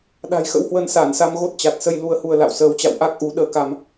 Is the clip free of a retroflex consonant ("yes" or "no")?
yes